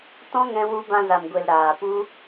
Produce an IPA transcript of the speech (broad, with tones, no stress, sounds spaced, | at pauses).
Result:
t ɔ̃˦ ŋ ɛ̃˧ w u˧ b ã˧ z a˨ m ɡʷ e˨ l ɾ aː˨ p u˧